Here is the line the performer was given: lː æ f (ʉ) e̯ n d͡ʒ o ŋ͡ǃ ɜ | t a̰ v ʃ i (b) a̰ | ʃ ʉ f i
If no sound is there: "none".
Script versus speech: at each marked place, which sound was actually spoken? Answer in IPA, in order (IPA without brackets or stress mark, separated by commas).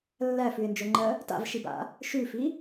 ʉ, b